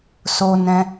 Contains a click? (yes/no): no